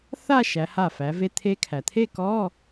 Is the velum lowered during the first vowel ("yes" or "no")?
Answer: no